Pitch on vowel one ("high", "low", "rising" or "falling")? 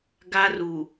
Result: high